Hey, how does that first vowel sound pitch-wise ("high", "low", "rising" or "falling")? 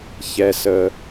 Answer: low